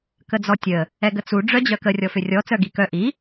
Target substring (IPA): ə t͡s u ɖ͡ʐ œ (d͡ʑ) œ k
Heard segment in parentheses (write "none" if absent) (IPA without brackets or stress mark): d͡ʑ